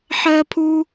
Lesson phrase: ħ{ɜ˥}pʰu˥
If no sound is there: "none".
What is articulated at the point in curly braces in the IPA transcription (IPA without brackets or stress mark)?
ɜ˥